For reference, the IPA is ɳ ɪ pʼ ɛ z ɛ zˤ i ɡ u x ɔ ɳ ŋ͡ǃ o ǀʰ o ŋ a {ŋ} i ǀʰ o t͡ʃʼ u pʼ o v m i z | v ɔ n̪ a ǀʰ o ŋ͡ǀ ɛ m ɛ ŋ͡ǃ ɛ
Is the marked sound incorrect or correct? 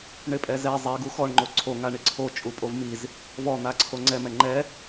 incorrect